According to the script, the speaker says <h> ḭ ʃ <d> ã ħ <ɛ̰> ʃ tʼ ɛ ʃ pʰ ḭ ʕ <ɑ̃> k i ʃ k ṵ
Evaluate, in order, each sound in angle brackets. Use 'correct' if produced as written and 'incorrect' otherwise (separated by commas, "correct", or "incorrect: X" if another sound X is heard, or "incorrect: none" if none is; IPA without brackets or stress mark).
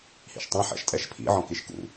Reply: correct, incorrect: tˤ, correct, incorrect: ɔ̃